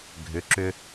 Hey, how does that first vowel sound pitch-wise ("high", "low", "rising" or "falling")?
rising